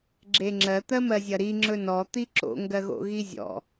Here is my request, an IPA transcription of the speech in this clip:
ɡ͡ǁeŋ͡ǁɜ t̪ɜmɜzʲɐɾi ŋ͡ǁɵnɔ t̪iǁo̰ ŋɡɜɣo̰ɣizʲɔ̰

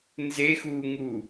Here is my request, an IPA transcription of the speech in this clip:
nzexuːŋu

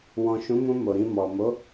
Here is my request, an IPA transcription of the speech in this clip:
wɔ̃˨ʃũ˨˦mũ˧ mo˨ɾĩ˧mɔ˨ mo˨˦

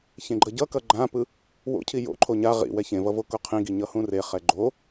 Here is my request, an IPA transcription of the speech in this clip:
çẽɡ͡ǃʌɟʌkʌ ɡ͡ǃãpɯ | wo̰cʰi jo̰ǃʰo ɲa ʁḭ wɛçẽvʌ vokoqʰĩɡi ɲʌhũreχɛ ɡ͡ǃo

